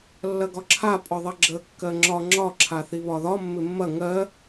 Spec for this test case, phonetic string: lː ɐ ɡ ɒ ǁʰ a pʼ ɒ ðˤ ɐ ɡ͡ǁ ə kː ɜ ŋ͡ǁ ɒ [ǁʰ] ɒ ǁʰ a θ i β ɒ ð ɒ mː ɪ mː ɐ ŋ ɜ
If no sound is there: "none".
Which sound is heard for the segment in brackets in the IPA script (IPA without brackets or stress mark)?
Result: ŋ͡ǁ